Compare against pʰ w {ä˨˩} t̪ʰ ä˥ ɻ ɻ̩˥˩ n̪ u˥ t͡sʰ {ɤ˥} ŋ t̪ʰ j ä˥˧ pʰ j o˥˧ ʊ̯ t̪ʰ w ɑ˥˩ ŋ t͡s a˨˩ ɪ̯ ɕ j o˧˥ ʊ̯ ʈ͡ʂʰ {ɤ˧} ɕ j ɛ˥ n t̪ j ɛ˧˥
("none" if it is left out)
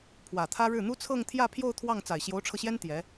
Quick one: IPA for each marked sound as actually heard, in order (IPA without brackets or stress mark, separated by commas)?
ä˨˩, ɤ˥˧, ɤ˧